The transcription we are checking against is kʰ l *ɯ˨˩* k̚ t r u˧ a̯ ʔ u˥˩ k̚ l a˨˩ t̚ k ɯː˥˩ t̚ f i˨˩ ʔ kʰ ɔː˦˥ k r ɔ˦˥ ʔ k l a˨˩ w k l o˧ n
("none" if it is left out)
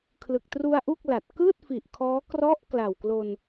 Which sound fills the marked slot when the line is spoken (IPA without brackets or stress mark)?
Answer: ɯ˨˩